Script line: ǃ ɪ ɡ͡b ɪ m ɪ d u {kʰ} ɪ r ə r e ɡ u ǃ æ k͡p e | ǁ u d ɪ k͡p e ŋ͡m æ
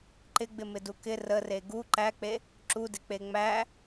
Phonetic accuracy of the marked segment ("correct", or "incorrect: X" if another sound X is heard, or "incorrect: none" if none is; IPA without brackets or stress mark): incorrect: k